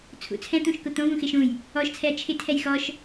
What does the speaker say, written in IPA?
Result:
t͡sʰ ṵ t͡sʰ ɛ̃ t̪ ũ ʃ k ʊ t̪ õ v ũ x ɪ ʃ ũ j | ɔ ʃ t͡sʰ ɛ ɐ̯ t͡ʃʰ ɪ tʰ ɛ j x ɔ ʃ

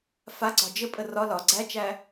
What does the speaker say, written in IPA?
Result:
f a ɡ͡ǀ ɒ d͡ʒ ə pʼ ə r ɒ l ɒ ɡ͡ǀ æ t͡ʃ æ

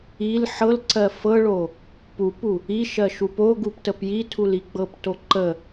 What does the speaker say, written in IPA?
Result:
i l ħ ɤ l ǀ ɜ f ɤ ɭ o | p u p u | i ʃ ɜ ʃ u p o ɡ u p t ə p j i tʰ u l i ɡ͡b ɤ p t o ǃ ə

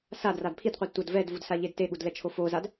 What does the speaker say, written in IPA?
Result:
s a d r a d pʰ i d qʷ ɯ d tʷ ʌ d v ɛ d v u d s a ʎ e d t e ɠ u d l ɛ t͡ʃʰ o f o z a d

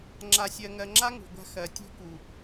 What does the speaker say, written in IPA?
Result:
ŋ͡ǁ a˨ sʲ ɜ˨ ŋ ɜ˨ ŋ͡ǁ a˦ ŋ ṳ˨ ɡʷ a̤˦ x ɜ˨ tʲ ṳ˦ k u˨

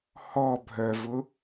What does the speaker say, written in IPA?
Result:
h ɔ bʱ œ v ʊ

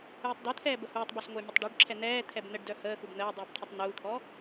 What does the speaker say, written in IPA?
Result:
uː tˤ d o t̪ʰ ɛː b ə h uː tˤ b o s ŋʷ əː mʲ ə tˤ ɖ u ɖ ǁʰ ɛ n̪ ɛː t̪ʰ ɛ b n̪ ə ɖ d œ h əː x u b n̪ əː dˤ uː b t̪ʰ ɛ tˤ n̪ uː t̪ʰ ɔ

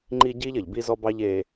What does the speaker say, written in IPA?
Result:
ŋ͡ǃ i˦ ɟ iː˦ ʎ ɐ˨ ʎ b i˦ z ɔ˦ b ɑ˦ ʎ e˦

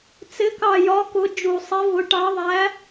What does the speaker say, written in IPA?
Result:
t͡s ɪ˨˥ k ɑ˧˩ j ɒ˨˥ k ʊ˨˥ d͡ʒ u˧˩ sˤ i˨˥ v ʊ˨˥ ʈ ɑ˨˥ ðˤ æ˨˥

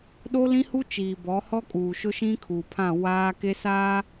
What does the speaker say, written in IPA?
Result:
ɗ o˦ l ĩ˦ h u˦ t͡ʃ iː˨ b ɔ˨˦ h ɔ˦ kʼ uː˨ ʃ ʊ˦ ʃ ĩ˦ kʰ uː˨ pʰ ã˦˨ w aː˦ k e˦ s aː˦

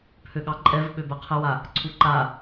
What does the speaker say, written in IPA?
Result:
pʰ ø ɠ ɑ ǃʼ ɛ v ɓ ø b ɛ qʰ ə w a | ǀʰ u ǃ a

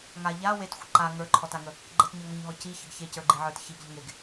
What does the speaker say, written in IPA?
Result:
ŋ a ʎ a w e t xʷ ə ǃ a ŋ ə˞ ǃʰ ɔ t a ŋ ə | ɡ͡ǃ ə t ɲ ə˞ ŋ ɔ ɲ ɦ ɔ c i ç ə ɡ ç e c ə˞ ɡ͡ǃ i ʕ ə˞ t ç i ɡ ʎ ə ŋ e ɡ

